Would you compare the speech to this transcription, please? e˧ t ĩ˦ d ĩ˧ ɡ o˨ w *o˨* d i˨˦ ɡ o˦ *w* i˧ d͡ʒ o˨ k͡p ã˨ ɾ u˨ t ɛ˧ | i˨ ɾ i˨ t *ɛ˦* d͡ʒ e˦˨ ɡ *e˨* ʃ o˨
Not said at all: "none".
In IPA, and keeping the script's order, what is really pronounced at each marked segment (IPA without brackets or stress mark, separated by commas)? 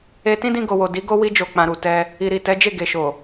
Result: o˨, w, ɛ˨˦, e˨